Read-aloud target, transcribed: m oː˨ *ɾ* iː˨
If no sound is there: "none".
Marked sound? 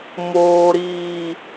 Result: ɾ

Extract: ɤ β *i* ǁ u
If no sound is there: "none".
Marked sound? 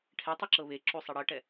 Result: e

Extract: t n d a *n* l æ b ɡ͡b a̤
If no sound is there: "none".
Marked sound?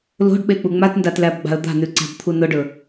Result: t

